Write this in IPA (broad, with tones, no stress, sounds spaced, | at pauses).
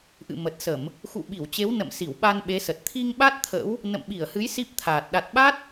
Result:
ʔ ɨ̰˧˨ m ə˨˩ t̚ s ə˧˩˨ m | x ṵ˧˨ ɓ i˧˩ w t͡ɕ e˨˦ w n ə̰˧˨ m s i˧˩ w ɓ a˧ n ɓ e˨˦ s ə˨˩ t̚ t̪ʰ i˧ ŋ ɓ a˦˥ t̚ t̪ʰ ə̰˧˥ w | n ə̰˧˨ m ɓ i˧˩ ə̯ h ɨ˨˦ j s i˦˥ p̚ t̪ʰ aː˨˩ t̚ ɗ a˨˩ t̚ ɓ a˦˥ t̚